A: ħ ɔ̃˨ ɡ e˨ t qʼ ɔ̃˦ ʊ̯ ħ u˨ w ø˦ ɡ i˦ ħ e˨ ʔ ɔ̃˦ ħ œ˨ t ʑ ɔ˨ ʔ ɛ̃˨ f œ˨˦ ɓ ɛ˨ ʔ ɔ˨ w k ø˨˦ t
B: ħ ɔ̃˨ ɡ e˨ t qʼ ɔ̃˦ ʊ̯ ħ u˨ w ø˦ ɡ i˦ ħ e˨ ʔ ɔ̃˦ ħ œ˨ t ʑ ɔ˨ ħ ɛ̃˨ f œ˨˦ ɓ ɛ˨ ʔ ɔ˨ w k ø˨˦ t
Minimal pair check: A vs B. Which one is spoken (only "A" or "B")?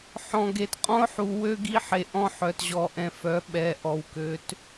A